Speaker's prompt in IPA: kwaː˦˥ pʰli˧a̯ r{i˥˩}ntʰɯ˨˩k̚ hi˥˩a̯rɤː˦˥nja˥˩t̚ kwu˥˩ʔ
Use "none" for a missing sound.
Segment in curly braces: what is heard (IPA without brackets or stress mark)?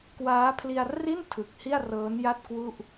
i˥˩